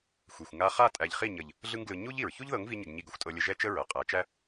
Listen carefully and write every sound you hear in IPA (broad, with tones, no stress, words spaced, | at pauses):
xʷɛ˨xʷŋa˧ χa˦˨tʼæ˨ʎχi˦˨ɲə˨ʎ | ɮɯ˦ŋɡlɯ˧ ɲu˦ʎ i˨ɹ çu˦ʎðɤ˨˦ŋvi˧ɲə˨ɡ ɲi˧ɡə˨xʷ tʼɤ˧lʲə˧ ʒɛ˦t͡ʃə˦ ɹɤ˨qʼæ˨˦t͡ʃæ˦